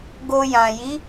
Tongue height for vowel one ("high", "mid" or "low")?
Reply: mid